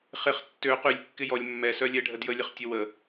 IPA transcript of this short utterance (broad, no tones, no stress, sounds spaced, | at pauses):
χ ɪ χ tː ø q y lʲ kː ɪ j ɔ lʲ mː ɛ s œ lʲ ɛ ɖʱ ə d j ə lʲ ə χ tʲ ə w ə